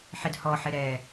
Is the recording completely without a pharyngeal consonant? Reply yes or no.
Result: no